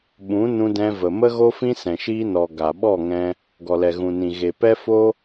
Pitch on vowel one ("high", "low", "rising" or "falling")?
rising